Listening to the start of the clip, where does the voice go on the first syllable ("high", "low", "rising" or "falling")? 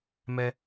low